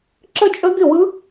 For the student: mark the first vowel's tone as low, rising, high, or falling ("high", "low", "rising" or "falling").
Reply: falling